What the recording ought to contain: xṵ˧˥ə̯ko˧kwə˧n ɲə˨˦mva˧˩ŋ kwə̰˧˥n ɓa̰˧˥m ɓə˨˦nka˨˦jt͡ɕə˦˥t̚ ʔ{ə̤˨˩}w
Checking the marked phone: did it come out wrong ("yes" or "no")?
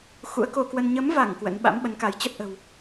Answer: no